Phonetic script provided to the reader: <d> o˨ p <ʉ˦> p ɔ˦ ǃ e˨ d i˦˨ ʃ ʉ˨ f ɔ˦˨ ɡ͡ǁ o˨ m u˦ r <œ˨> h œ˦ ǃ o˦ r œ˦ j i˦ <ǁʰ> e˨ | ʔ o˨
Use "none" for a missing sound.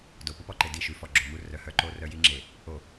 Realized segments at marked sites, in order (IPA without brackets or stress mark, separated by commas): d, u˦, œ˨, ŋ͡ǁ